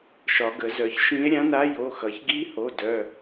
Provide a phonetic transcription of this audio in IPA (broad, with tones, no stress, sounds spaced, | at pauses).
ʃ ɒ˩˧ ɡ ə˩˧ z œ˩˧ ç ʃ ĩ˧˥ e̯ ɾʲ ã˧˥ n a˧˥ j o˩˧˩ x ʌ˩˧ ç ɡ i˧˥ h o˩˧˩ d œ˩˧˩